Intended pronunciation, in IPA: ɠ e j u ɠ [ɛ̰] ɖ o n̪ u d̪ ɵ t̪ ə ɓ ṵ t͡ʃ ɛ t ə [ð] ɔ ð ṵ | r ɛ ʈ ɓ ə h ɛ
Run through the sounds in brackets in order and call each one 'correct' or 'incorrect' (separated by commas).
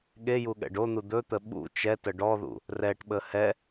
correct, incorrect